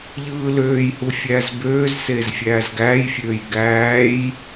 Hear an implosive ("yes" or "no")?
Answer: no